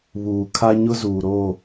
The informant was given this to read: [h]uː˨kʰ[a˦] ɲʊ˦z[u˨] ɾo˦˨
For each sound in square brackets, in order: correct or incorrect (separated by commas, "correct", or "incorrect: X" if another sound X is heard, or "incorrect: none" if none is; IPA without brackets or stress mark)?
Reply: incorrect: β, correct, incorrect: uː˨